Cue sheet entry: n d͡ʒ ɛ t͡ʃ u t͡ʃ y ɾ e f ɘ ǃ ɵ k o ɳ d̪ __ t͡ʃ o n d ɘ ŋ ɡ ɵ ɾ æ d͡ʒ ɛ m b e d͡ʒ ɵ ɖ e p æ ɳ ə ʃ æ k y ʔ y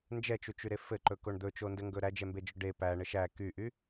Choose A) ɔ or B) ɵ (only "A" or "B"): B